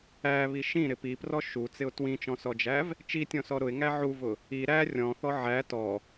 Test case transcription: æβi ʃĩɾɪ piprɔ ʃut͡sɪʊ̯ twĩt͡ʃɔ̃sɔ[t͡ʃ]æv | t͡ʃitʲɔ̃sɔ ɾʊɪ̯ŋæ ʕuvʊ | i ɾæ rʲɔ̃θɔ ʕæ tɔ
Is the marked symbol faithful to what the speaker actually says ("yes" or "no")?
no